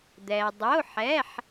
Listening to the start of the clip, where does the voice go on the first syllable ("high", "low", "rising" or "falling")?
low